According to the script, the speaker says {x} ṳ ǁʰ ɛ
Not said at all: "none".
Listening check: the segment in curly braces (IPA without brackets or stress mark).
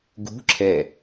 ɡ